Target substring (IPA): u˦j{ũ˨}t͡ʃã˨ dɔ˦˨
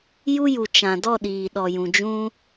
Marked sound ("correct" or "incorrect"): incorrect